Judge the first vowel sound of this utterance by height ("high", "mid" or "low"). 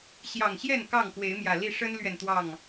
low